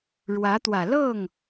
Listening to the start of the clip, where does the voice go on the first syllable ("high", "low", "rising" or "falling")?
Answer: rising